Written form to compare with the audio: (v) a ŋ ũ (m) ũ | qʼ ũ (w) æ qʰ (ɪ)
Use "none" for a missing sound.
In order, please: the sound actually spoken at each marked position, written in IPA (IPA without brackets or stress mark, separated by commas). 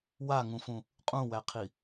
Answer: w, f, w, i